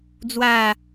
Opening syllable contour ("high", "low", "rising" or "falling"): low